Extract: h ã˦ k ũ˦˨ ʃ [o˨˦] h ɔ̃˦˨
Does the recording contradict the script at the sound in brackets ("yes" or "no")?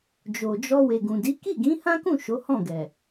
no